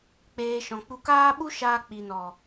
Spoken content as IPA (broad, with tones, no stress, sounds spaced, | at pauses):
k͡p eː˨ ʃ ɔ̃˨ k͡p u˧ k aː˦ ɓ u˦ ʃ aː˧ k͡p i˨ n ɔ˨